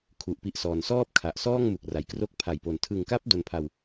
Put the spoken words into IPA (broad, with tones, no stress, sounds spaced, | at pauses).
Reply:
kʰ u˨˩ ʔ p i˥˩ ʔ s ɔː˧ n s ɔː˥˩ p̚ kʰ a˨˩ ʔ s ɔː˥˩ ŋ m u˨˩ k̚ r a˨˩ j k r o˦˥ k̚ pʰ a˨˩ j p o˨˩ n tʰ ɯ˨˩ ŋ k a˦˥ p̚ d o˧ n pʰ a˧ w